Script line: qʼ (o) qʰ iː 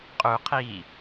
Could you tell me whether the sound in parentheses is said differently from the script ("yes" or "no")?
yes